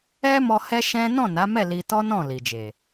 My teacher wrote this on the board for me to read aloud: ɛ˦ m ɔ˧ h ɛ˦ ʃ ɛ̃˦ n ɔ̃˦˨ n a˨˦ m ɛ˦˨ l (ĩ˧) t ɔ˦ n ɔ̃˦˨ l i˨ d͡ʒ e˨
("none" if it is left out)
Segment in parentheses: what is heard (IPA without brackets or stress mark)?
i˧